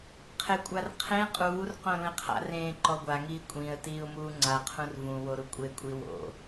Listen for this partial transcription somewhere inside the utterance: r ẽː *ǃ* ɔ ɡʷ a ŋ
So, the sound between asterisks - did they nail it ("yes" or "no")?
yes